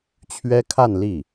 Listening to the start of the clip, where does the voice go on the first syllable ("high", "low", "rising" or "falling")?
high